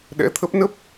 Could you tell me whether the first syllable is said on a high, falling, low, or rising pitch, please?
rising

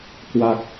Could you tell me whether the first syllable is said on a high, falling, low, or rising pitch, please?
low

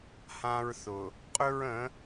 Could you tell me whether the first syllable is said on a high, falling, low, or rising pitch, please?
high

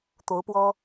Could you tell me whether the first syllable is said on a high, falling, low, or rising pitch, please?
rising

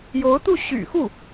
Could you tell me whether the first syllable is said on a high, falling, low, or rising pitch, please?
rising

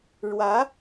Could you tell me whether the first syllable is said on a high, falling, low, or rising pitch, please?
rising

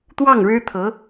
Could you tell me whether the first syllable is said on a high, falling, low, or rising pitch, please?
falling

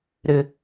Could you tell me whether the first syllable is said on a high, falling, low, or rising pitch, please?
low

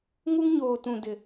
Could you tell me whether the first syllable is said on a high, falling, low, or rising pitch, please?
high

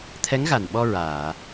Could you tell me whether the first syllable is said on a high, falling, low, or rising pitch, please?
rising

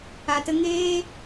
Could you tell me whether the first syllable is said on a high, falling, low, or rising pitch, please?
low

